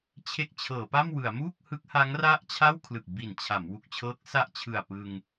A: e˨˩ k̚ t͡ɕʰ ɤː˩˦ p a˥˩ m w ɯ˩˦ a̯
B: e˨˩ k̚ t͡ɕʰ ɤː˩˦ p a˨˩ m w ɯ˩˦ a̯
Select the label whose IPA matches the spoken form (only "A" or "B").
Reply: A